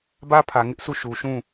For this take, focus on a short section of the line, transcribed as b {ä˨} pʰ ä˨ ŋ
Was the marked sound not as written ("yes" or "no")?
yes